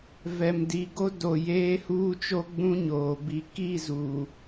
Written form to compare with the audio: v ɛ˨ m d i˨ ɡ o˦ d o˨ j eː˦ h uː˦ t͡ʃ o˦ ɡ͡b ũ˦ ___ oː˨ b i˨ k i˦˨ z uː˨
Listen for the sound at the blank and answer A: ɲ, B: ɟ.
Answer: A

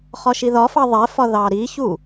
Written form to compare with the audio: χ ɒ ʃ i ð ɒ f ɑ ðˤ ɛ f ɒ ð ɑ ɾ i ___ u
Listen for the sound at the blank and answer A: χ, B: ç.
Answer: B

